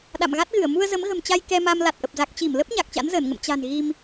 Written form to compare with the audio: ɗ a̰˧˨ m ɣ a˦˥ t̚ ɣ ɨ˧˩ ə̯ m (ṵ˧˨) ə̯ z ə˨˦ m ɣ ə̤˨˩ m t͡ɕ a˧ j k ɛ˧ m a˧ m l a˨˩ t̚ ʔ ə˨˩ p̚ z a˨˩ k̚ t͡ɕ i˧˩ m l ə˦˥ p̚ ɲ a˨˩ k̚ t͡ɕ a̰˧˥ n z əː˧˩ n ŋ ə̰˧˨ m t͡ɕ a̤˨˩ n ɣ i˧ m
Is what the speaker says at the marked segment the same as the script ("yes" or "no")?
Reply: no